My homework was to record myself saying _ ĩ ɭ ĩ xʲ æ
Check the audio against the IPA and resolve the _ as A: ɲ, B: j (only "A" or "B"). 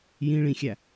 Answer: B